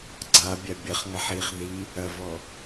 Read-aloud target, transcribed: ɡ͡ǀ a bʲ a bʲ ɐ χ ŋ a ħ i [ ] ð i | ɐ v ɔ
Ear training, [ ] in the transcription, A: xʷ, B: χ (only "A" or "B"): B